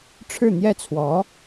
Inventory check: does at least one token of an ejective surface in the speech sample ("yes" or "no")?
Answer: no